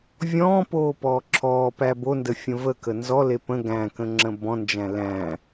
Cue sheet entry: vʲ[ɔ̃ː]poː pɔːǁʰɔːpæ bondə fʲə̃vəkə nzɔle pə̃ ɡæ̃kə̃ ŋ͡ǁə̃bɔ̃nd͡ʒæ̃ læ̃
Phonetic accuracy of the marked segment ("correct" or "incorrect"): correct